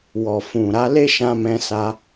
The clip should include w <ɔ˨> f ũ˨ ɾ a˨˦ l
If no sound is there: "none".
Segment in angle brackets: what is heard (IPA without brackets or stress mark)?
ɔ˨